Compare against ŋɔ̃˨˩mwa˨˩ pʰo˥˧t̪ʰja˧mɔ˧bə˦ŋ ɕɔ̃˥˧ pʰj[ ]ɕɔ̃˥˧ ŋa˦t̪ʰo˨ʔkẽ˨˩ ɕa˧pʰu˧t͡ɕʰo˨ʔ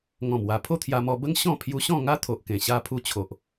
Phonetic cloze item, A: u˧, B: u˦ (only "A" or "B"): A